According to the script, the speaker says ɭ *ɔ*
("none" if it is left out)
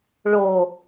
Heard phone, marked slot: o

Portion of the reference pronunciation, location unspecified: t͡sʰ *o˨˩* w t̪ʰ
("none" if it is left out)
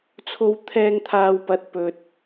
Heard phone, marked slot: o˧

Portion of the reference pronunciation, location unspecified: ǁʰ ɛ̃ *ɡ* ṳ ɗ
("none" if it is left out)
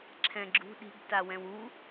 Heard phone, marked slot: ɡ͡ǁ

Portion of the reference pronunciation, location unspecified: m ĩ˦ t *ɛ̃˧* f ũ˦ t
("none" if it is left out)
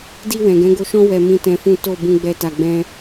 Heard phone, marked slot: ɛ̃˧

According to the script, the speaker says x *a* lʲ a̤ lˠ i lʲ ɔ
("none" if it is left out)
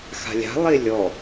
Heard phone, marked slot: a̤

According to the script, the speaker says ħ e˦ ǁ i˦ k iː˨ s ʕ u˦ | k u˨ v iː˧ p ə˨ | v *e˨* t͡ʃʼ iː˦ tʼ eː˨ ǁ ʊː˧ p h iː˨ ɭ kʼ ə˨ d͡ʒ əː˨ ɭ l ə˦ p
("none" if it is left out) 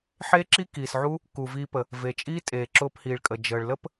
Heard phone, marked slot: e˨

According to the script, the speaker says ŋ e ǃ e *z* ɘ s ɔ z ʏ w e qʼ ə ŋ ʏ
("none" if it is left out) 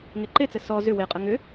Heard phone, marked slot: t͡s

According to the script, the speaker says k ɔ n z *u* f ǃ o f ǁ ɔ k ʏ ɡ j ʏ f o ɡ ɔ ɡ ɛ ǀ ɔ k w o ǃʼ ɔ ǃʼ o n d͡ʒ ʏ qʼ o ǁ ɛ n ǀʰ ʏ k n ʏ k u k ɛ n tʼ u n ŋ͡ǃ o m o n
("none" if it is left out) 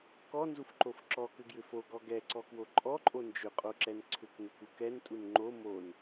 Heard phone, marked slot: u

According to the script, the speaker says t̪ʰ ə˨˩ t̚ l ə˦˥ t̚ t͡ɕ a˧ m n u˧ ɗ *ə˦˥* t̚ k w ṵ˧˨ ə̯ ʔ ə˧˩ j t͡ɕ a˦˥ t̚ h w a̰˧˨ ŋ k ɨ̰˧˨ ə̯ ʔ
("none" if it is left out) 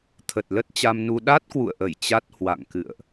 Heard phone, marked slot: a˦˥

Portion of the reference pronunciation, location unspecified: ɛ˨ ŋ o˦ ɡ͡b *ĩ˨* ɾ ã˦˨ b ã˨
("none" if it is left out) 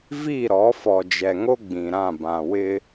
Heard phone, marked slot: ĩ˨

